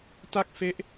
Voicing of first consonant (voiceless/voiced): voiceless